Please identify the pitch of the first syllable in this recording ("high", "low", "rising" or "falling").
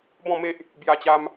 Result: falling